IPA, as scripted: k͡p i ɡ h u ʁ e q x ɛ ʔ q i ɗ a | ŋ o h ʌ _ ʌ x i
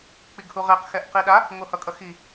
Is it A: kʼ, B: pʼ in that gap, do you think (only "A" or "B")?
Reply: A